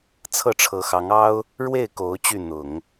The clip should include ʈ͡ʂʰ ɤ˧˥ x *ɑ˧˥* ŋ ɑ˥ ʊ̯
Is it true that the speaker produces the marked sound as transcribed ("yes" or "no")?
yes